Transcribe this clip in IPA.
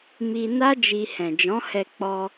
m i˧ n a˦ d͡ʒ i˧ h ɛ̃˨ d͡ʒ ɔ̃˨˦ h ɛ˧ k͡p ɔ˧

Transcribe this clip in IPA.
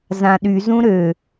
z ã ɗ y z ũ ɾ ø

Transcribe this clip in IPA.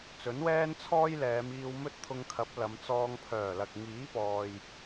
t͡s ɵ˨˥ n w ɛː˥ n t͡sʰ ɔː˥ j l ɛː˨˧ m iː˧ w m ɵ˥ t̚ t̪ʰ ʊ˧ ŋ kʰ ɐ˨˥ p̚ l ɐ˨˧ m t͡s ɔː˧ ŋ pʰ œː˨˩ l ɐ˨ k̚ ŋ iː˨˥ p ɔː˨ j

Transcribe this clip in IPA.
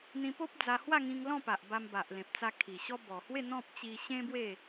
n̪ ĩ˧ p o˦ p̚ d͡z a˧ h w a˥˧ ŋ ĩ˧ ŋ l ɔ̃˥˧ p a˨ ʔ b a˧ m b a˨ ʔ l ẽ˨ p̚ t͡s a˧ kʰ i˨˩ ɕ ɔ˧ b ɔ˨˩ h w e˥˧ n̪ ɔ̃˦ p̚ t͡ɕ i˧ ɕ ẽ˦ b w e˥˧

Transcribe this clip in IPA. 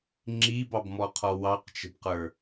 ŋ͡ǁ i b ɑ b m ɔ qʰ ɔ w ɑ q t͡ʃ ə̤ b q ə˞

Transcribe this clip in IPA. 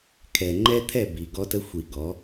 kʰ ɛ˨ ŋ͡ǃ ɛ˦ t̪ʰ ɛ˦˨ b i˨ ɡ ɔ˦ t ə˦ xʷ i˨ ɡ ɔ˨˦

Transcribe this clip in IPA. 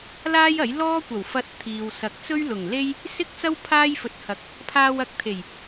l aː˥ j ɐ˨˥ j l ɔː˥ kʷ ɐ˨˩ w f ɐ˧ t̚ t̪ʰ iː˨ w s ɐ˨ k̚ t͡s ɵ˥ ɥ l ʊ˨˩ ŋ l e˥ j | s ɪ˥ k̚ t͡s ɐ˥ w pʰ aː˥ j f ɵ˨˥ t̚ h ɐ˨˥ k̚ | pʰ aː˧ w ɐ˨ k̚ t̪ʰ e˨˩ j

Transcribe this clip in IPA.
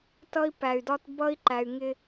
t ʌ˦ i̯ p æ˨ y̯ d ɒ˦ t b ʌ˦ i̯ ǃ æ˨ y̯ ŋ ɪ˦

